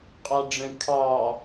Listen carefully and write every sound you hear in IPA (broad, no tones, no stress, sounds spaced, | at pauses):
qʼ ɑ ɖ͡ʐ ə̃ kʰ ɑ